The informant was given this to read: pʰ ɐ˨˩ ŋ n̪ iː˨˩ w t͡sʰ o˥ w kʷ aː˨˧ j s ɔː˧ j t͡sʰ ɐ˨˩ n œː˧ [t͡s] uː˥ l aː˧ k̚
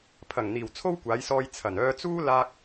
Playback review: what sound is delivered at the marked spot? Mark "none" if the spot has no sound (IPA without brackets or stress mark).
t͡s